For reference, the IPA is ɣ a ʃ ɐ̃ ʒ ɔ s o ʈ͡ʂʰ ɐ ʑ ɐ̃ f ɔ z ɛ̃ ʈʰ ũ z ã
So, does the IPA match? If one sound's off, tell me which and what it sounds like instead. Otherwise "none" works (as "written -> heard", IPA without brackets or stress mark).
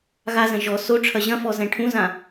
ʃ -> z